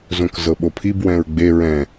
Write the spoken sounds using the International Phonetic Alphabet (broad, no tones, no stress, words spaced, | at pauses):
zõkzɤɓopʰib wɛ̃ɹɡ͡be ɹɛ̃